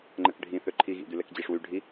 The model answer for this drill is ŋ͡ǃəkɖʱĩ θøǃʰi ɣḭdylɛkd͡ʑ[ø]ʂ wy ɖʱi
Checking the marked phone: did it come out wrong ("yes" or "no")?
yes